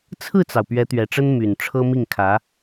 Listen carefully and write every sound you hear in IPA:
t͡sʰɹ̩˥˩t͡sɑ˩ʊ̯ pɥɛ˧˥t̪ɥɛ˨˩ʈ͡ʂə˥n my˨˩n ʈ͡ʂʰɤ˥mi˥˩ŋkʰä˧˥

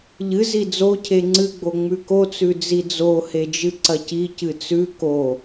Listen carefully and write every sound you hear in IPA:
ʎɨ zid͡zo cʰeŋ͡ǀɨɡ͡bo ŋ͡mʉkot͡sʉ d͡zid͡zo hed͡ʒɨǀɐci cɨt͡sʉ ko

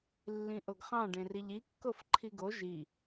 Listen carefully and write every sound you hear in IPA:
lːĩʔoɡχɑ̃ ɖẽriʎi kːofǃʰiɡo ʒi

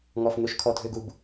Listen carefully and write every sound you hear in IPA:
ŋɔfn̪ɵʃkʰɔ dʱøɡub

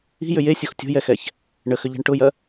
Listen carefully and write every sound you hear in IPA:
i̤jʏ jesʲox tʲo̤jɛxɛç | ɳəxʏʎɛ̤ɳ ʈʊjɐ

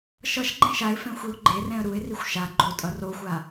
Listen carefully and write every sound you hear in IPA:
ʃʌʃ ɡ͡ǃɛ̃ʃaɪ̯fɛ̃ xʷiʊ̯ɡ͡ǃerɛ̃ə̯ ɾuɪ̯rixʷ ʃa ɡ͡ǃotʼʌ roxʷa

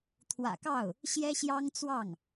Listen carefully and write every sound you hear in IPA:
t̪ʰwä̰˨˩kɑ˥˩ʊ̯ | ɕjɛ˥ɕjɑ˥ŋt͡swɑ˥˩ŋ

